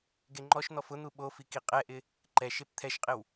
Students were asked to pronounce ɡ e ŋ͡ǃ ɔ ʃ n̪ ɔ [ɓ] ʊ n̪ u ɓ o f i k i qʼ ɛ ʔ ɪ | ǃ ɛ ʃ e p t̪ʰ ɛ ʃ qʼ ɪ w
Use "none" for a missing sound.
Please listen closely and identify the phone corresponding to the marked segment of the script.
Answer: f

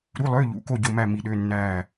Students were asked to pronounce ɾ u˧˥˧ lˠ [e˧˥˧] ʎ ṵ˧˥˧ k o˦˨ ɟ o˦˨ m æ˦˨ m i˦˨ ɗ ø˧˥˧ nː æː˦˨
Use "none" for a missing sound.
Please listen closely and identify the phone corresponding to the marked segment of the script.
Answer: ø˧˥˧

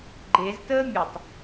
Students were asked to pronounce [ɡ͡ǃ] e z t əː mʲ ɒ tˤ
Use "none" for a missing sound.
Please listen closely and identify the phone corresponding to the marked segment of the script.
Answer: ɡ͡ǃ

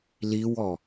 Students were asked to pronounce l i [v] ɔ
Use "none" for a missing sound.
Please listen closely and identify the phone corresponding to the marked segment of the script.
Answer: w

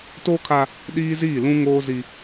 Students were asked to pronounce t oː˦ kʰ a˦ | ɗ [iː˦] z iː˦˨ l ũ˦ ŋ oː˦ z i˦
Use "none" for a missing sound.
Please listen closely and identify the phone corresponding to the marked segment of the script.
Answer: iː˦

